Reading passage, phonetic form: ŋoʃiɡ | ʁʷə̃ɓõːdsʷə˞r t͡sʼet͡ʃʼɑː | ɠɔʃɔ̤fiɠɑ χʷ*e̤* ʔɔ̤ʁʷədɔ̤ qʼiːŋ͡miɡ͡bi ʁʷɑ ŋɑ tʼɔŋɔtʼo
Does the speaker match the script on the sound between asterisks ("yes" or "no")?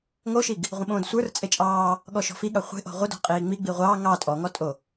yes